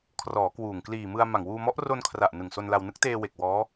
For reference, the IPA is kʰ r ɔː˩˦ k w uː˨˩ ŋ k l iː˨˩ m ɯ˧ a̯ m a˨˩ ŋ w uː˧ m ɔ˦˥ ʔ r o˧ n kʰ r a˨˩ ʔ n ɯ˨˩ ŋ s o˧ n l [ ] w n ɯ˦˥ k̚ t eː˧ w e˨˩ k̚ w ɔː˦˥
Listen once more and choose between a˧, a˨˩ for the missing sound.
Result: a˧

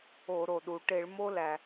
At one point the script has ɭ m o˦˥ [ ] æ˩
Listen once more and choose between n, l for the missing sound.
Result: l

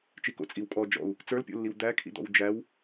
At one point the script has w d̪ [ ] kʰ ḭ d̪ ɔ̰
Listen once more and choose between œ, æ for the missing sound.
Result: æ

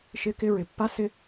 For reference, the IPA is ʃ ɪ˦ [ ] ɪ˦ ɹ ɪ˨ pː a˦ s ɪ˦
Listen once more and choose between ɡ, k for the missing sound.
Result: k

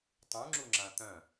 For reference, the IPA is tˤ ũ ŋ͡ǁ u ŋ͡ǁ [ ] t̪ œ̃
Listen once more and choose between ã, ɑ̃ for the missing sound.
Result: ã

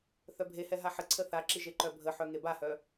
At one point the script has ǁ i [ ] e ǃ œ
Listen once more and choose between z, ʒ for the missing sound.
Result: ʒ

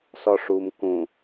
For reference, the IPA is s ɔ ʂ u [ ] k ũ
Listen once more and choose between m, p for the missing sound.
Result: m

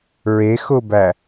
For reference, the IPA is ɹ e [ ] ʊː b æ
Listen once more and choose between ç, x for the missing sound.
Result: x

